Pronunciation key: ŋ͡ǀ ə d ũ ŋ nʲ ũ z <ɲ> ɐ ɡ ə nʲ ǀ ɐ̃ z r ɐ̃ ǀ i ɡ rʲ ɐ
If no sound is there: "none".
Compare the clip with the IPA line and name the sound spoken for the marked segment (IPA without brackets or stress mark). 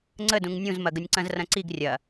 m